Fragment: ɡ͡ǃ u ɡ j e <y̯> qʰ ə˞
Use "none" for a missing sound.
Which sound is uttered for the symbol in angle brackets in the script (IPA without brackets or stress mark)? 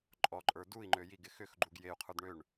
u̯